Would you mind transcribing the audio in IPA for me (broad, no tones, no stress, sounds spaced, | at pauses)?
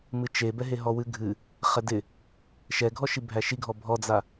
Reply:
m ɨ t͡ʃ e b ɛ ɦ e ɦ ɔ w ɨ ɡʱ ɨ | χ ɛ d ɪ | ʃ ɛ ɡʱ ɔ ʃ i bʱ æ ʃ i ɡʱ ɔ bʱ ɔ d͡z a